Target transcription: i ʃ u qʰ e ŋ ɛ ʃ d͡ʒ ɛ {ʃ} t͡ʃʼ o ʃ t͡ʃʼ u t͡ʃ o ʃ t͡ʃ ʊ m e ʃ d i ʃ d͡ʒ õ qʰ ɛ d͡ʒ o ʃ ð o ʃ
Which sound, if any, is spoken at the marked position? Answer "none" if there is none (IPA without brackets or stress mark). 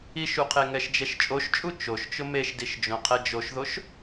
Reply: ʃ